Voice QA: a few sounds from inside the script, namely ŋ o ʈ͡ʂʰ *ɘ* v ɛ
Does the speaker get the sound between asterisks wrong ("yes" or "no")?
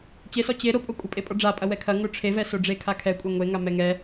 yes